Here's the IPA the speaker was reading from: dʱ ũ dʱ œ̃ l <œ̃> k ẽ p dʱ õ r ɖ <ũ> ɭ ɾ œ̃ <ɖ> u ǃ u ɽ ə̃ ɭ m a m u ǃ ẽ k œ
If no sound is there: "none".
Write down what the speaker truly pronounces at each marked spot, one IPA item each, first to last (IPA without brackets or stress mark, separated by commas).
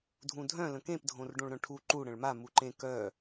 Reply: ə̃, õ, ʈʰ